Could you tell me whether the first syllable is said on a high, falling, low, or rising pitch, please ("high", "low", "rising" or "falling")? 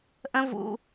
high